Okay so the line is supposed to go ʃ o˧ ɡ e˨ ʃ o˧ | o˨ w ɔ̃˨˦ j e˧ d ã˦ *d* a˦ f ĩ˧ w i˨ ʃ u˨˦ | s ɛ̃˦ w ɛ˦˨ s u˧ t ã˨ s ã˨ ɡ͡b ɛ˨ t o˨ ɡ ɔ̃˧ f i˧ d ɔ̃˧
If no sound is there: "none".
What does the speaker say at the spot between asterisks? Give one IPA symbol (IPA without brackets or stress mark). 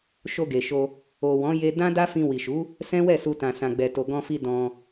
d